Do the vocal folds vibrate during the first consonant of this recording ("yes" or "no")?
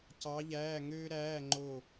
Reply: no